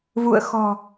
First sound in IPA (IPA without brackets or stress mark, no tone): v